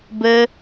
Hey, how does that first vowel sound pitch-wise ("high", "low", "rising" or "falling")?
high